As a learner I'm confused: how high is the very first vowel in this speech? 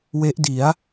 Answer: mid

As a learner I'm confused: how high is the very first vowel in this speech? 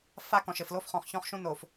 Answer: low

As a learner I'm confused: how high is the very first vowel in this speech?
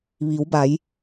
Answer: high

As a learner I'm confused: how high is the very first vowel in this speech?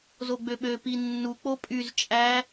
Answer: mid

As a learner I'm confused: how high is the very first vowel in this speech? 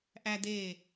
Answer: low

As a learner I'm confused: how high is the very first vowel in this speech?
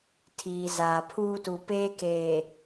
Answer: high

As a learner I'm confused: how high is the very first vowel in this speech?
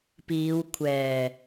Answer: high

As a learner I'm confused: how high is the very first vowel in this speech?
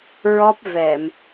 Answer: mid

